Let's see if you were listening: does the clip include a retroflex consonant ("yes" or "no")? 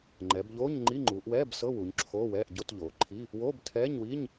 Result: no